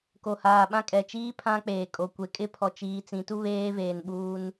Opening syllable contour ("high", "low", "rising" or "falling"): low